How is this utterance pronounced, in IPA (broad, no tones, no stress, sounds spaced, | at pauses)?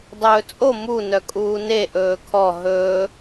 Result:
dˤ ɵː t͡sʼ o m u n œ kʼ uː n e ʔ ɵː kʰ ɔ ɦ ɵː